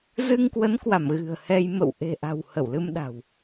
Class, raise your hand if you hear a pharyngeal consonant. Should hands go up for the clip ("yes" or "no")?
no